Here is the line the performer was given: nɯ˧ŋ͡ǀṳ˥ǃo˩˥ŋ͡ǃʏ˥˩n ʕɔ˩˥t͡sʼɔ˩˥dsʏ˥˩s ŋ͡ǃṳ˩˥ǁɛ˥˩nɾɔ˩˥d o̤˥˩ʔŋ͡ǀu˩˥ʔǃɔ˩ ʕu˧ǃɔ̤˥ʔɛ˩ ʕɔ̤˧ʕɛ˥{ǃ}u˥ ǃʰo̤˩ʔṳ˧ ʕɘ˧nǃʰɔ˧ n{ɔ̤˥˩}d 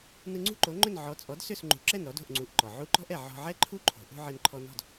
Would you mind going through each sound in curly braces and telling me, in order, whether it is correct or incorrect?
incorrect, correct

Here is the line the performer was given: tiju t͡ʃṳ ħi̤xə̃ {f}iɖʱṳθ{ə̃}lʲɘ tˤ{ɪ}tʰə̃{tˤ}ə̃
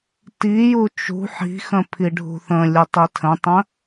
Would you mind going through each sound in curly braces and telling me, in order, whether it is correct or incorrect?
incorrect, correct, incorrect, correct

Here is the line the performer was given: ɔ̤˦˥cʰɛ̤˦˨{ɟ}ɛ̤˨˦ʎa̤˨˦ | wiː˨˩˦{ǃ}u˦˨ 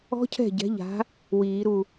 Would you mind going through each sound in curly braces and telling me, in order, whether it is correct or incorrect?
correct, incorrect

